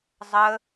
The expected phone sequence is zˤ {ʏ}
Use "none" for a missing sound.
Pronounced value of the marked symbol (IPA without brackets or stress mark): ə